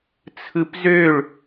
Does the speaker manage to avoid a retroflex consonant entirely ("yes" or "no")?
no